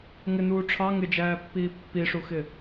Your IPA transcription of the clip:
ŋɪnuː ʈ͡ʂʰɑ ŋɪd͡ʒæːpːiː pːiʂuxɪ

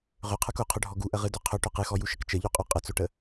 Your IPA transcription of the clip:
ʁøqʰə˞k oqʰøɖʱɔ ɡuʔəʁɨdɵ qʰɵʈɵ qɨxɔjuʃək t͡ʃəʎuqʼø qʼət͡soʈə

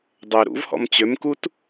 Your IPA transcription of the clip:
dˤø ɾṵvhɔ̰m t͡ɕømkut

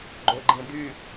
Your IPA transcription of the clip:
ɡ͡ǃoɡ͡ǃĩd̪y

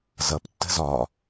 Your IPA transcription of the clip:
zʌp tːə̤zɒ

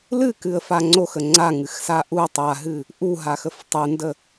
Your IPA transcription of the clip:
lɨkɨə̯fa ŋ͡ǀoxə ŋ͡ǀaŋɨxsa ʔu tˤaɦɨ | ʔuɦaxəf tˤundə

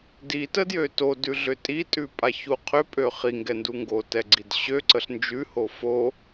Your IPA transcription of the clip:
ditədjø todʉɮʏ tʼitʼʉpʼaçu qʰʏpʼø χiŋɡɛndu ŋɡotɛɡ͡ǀid ɕøǀəɬ nd͡ʒʉho fo

